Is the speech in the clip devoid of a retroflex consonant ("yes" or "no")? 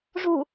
no